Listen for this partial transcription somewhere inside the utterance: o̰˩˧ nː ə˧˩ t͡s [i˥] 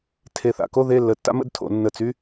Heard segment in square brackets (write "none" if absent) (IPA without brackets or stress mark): y˥